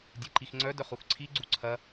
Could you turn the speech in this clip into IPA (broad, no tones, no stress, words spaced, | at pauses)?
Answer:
dʲeǃixŋ͡ǀœ dœχuxǀʰi ɡ͡ǀuǀʰɐ